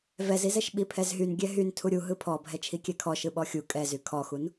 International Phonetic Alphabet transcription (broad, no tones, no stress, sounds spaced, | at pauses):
v ɛ z i z ɛ ʃ ɓ i pʰ ɛ z ɦ y n ɡʲ ɛ ɦ y n tʰ u ɾʲ u ɦ ɯ pʰ ɔ bʱ ɛ t͡ʃʰ i kʲ ɛ kʰ ɔ ʃ ɯ ɓ ɔ xʲ u kʼ ɛ z y kʰ ɔ x u n